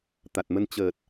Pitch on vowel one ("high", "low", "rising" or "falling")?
low